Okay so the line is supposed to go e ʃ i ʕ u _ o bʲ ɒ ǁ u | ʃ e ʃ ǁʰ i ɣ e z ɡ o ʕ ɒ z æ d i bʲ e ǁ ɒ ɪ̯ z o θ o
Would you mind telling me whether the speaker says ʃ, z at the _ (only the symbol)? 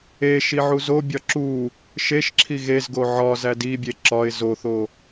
z